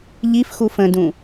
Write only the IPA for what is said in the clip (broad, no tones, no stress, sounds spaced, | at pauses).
ʎ i f x u f ə̃ d ũ